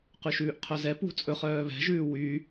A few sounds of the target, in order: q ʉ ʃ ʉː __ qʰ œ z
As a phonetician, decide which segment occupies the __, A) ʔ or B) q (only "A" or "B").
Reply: A